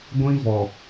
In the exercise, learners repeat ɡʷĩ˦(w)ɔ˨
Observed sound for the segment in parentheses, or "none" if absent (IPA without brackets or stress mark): v